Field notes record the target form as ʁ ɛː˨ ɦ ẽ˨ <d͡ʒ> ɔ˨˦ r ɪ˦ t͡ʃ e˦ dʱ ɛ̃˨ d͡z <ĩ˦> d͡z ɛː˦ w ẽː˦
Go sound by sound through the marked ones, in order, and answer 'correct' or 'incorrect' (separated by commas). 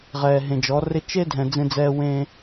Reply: correct, incorrect